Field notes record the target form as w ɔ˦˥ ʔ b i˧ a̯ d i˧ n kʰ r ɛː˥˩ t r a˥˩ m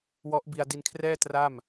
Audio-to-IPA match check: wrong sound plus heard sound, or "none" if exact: none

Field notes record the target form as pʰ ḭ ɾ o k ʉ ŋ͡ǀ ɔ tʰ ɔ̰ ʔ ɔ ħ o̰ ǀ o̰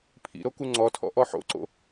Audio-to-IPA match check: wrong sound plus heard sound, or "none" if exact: ʉ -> u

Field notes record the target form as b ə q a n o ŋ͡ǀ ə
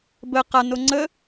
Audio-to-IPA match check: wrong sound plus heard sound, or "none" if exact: none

